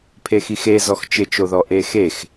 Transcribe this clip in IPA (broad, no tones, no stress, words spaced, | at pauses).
pʰexixe zɔxt͡ʃɪt͡ʃoðɔ ʔexex